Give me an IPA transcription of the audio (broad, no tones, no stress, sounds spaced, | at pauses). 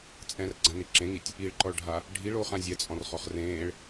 t͡sʼ ɛ̃ r ɡ͡ǀ ã n i ǁ ẽ ŋ i tʲ | i ɭ ǃ ɔ ɭ ɖʱ a | ɖʱ i ɭ oː χ ã zʲ ɛ t͡sʼ ɔ̃ r χ ɔ χ r ẽː ɭ